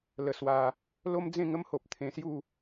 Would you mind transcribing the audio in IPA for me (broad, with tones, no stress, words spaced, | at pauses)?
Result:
lə˧swa˧ | lo˦md͡zẽ˥˧ŋə˦mho˨p̚ t̪ʰẽ˧sju˥˧